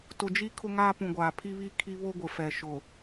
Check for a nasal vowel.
present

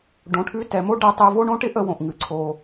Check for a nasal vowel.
present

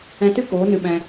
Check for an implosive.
present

